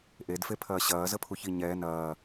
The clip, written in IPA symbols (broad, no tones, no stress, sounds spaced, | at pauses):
ʔ e d f e pʰ ɐː ɕ ɐː z ə pʰ u ç i ɲ ɛː n ɐː